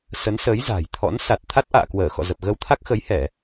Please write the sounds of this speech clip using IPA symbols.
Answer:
s ə˨˦ n s ə˨˦ j z a̤˨˩ j t̪ʰ ɔ̰˧˥ n s a˨˩ t̚ t̪ʰ a˦˥ t̚ ʔ a̰ː˧˨ k w əː˧˩ x ɔ̰˧˨ z ə˨˩ p̚ ɣ ə˧ w t̪ʰ a˦˥ k̚ x ə˨˦ j h ɛ˧˩˨

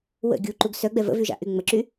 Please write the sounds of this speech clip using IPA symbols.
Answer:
w ə̰ ɡʲ u ǃ u ɡ s œ ɡ͡b ɛ v ə̰ v y ʒ a̰ ʔ y ŋ͡m ə ǁ y

